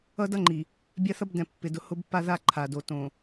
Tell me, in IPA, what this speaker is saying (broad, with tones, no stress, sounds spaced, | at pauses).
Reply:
ʌ˦ d ʌ˦ ŋ͡ǃ i˨ | bʲ a˦ θ ʌ˦ b d ɛ̃˨ pː ɪ˨ d ʊ˦ h ʊ˦ b pː a˦ ð a˦ ǃʰ a˨ d o˨ t õ˨